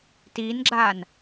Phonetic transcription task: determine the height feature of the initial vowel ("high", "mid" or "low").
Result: high